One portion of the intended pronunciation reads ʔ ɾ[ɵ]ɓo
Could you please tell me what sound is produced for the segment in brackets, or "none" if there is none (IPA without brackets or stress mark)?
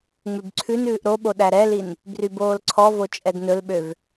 o